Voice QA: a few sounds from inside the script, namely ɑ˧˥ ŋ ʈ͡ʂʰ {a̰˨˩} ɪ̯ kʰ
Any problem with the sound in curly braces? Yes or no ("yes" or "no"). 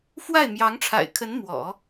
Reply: no